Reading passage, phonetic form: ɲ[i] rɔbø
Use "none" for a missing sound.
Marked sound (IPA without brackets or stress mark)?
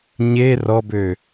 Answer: e